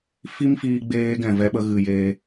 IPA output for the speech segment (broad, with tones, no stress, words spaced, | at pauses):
fi˦mfiː˧ɡ͡beː˧ ɡɛ̃˨vɛ˦ɓə˦ ɣɨ˨jeː˧